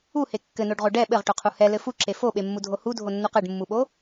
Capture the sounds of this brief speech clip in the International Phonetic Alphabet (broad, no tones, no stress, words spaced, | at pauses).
uhe kːɘnoɖʁo ɖɛ ɓɘʁʈoqʰu hɛlɘ fuǁe foɓemːudʱo hudʱonːuq ɘɖmːuɓo